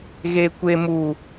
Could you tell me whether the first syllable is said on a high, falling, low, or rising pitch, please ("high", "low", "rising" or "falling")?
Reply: high